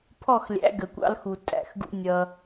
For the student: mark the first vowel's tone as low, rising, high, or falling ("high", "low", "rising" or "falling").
falling